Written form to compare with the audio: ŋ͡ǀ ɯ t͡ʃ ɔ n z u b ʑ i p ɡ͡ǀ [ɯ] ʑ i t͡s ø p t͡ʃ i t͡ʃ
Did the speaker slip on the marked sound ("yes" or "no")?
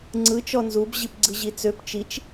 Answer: no